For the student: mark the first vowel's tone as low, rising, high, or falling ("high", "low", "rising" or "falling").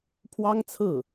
high